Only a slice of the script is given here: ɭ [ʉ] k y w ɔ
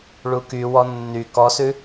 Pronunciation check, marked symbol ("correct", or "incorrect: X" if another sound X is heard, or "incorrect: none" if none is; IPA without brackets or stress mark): incorrect: u